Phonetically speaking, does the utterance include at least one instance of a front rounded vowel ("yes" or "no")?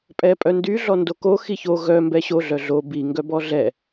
yes